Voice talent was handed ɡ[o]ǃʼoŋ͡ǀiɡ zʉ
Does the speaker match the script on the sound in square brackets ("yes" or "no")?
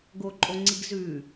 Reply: yes